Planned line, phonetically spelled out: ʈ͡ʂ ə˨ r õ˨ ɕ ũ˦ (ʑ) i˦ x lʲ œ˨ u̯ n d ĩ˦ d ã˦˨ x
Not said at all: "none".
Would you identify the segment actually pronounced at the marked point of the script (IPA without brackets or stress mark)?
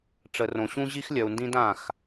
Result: ʑ